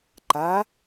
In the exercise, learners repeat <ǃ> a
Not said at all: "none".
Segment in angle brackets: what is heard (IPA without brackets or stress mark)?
ǃ